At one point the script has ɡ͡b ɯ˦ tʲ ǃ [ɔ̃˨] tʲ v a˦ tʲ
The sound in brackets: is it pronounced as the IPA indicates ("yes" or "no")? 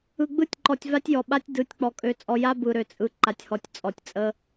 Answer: no